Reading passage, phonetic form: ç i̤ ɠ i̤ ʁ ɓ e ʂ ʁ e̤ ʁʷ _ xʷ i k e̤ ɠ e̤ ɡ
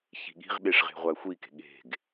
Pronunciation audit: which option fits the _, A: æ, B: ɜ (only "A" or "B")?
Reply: A